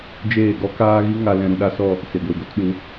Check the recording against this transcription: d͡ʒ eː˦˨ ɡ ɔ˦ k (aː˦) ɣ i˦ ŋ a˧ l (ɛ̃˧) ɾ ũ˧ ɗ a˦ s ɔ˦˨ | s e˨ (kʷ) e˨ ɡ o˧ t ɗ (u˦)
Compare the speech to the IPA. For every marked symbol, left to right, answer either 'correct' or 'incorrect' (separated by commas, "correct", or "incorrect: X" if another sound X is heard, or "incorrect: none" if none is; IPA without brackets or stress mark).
correct, correct, incorrect: ɡʷ, incorrect: u˨˦